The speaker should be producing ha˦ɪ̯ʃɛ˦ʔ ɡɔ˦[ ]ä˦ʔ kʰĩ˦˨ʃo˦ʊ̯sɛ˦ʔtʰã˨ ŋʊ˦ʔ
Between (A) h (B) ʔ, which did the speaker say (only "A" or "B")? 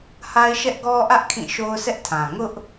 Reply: B